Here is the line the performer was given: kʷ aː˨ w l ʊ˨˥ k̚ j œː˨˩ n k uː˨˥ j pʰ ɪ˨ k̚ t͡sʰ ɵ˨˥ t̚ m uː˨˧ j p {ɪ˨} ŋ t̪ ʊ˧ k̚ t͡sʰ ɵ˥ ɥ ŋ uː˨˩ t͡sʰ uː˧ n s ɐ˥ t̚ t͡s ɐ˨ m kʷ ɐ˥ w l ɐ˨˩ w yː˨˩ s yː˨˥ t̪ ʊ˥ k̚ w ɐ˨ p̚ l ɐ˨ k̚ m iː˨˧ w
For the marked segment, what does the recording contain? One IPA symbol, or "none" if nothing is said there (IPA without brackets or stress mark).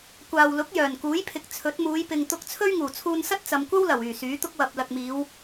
ɪ˨